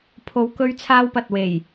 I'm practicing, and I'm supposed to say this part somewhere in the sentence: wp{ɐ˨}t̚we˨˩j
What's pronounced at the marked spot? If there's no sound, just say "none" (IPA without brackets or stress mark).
ɐ˨